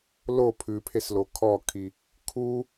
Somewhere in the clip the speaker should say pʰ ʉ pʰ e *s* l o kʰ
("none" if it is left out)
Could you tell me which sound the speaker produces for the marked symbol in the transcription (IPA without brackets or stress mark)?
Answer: s